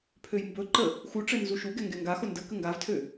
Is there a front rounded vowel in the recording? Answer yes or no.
yes